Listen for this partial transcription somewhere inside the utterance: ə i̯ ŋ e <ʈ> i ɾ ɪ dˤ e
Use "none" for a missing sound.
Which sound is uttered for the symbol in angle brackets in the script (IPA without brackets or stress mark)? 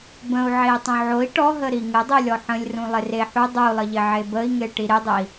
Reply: ʈ